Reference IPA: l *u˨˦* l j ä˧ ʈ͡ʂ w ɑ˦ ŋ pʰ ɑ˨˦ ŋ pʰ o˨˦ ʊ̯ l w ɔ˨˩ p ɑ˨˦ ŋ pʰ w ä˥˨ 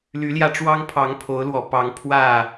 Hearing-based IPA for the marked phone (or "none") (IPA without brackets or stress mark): y˨˦